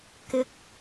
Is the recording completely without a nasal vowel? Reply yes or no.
yes